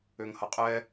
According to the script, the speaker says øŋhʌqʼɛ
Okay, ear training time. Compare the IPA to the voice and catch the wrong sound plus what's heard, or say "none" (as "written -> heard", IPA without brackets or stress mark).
none